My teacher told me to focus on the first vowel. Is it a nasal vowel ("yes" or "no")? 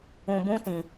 yes